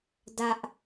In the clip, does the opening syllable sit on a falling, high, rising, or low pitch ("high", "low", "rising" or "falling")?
high